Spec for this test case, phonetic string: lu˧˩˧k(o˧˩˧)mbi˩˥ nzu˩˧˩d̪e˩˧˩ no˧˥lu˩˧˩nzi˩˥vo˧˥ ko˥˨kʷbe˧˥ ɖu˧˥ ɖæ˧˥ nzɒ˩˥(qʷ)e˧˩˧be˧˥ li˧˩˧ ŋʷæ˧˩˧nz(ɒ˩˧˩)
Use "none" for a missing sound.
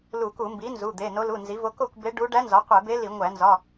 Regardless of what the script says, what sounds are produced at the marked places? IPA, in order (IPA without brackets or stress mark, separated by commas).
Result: u˧˩˧, qʷ, ɒ˩˧˩